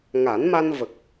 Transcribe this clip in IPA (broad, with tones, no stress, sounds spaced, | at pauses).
ŋ a˨˩˦ n m a˧ n v ə˨˩ k̚